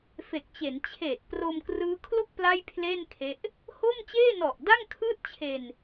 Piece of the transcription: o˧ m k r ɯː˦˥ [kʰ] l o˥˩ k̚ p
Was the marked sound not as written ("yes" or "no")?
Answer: no